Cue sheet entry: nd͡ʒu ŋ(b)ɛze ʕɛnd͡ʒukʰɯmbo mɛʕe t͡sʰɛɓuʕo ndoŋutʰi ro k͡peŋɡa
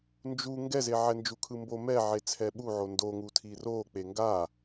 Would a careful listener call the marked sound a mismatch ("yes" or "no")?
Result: yes